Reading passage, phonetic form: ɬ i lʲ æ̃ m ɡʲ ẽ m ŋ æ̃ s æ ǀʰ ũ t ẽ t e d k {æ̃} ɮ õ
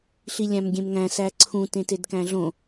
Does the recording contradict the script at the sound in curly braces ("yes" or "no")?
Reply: no